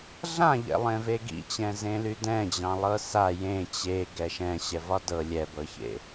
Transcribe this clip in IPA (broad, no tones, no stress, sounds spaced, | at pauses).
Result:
ɮ ã ʎ ɛ̰ lˠ ẽ v e ɡ ḭ t͡ɕ ɛ̃ z ẽ l y d ɛ̃ d͡ʑ ɑ̃ lˠ ɤ s a j ẽ t͡ɕ e ɡ ɛ ʃ ɛ̃ ɕ ɛ v ɒ d ɤ lʲ ɛ b ɤ ç ḛ